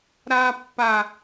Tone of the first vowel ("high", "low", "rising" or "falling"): high